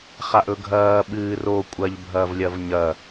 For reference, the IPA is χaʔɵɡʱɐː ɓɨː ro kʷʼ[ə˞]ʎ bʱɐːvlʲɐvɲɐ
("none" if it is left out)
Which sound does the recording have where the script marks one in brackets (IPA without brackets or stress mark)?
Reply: ɐ